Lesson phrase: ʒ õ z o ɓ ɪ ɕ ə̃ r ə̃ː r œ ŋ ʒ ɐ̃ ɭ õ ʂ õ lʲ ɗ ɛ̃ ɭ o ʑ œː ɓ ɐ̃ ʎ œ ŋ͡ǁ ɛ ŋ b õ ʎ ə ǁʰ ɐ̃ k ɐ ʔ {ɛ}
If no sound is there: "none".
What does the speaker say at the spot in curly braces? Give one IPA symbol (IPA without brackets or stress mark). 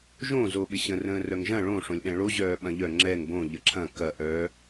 œ